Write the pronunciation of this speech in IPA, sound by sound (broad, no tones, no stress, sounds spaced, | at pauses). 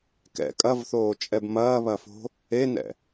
k ɛ̰ kʼ ɐ v θ oː t͡ʃʼ ɛ b m ɐː β ɐ f o̤ | e n ɛ̰